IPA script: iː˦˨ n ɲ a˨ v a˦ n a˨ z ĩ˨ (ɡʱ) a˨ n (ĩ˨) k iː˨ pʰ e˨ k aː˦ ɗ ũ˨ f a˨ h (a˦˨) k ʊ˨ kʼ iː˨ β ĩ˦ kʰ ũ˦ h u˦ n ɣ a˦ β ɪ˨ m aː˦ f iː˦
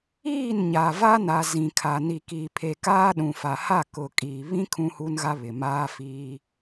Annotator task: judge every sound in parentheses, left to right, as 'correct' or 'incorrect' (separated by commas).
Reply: incorrect, incorrect, correct